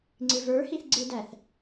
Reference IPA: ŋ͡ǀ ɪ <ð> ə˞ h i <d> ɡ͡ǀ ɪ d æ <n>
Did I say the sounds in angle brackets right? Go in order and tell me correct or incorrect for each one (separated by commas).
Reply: incorrect, incorrect, incorrect